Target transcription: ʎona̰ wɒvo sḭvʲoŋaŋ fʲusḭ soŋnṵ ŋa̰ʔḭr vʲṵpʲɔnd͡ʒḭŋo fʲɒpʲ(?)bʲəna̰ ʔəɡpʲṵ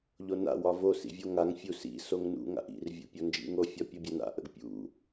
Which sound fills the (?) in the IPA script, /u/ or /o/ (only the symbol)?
o